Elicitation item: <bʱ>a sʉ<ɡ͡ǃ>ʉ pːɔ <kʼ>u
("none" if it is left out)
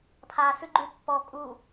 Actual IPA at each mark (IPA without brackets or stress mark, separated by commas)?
pʰ, ɡ͡ǃ, kʼ